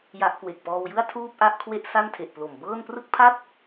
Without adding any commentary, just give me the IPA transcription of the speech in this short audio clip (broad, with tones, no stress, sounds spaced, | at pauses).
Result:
j a˦˥ ʔ k w e˨˩ k̚ p ɔː˧ w j ɯ˥˩ a̯ tʰ uː˥˩ p̚ ʔ a˥˩ ʔ kʰ w e˥˩ ʔ s a˥˩ n tʰ e˨˩ ʔ p l o˨˩ m b ɤː˥˩ n p r ɯ˥˩ k̚ pʰ a˥˩ t̚